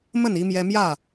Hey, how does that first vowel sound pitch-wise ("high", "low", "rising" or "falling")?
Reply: falling